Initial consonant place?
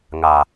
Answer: velar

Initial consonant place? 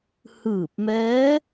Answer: glottal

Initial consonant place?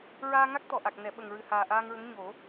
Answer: alveolar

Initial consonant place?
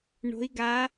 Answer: retroflex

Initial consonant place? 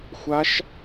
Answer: velar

